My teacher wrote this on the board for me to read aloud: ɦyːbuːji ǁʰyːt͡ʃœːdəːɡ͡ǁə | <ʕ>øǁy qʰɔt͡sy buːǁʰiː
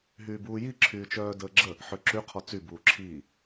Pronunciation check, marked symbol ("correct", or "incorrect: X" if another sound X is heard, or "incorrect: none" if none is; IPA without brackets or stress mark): incorrect: ħ